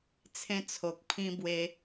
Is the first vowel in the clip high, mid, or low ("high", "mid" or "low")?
mid